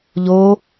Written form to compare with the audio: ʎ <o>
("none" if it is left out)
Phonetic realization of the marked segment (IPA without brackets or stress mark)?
o